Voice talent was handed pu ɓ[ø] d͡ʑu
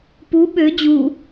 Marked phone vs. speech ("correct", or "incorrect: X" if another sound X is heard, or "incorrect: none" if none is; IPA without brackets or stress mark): correct